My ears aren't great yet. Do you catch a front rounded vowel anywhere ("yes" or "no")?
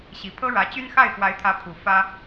yes